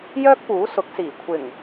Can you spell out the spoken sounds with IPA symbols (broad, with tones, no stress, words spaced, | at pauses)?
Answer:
jœː˥k̚puː˨˥sʊ˨˥k̚siː˨˩ kʷʰɪ˨˩ŋ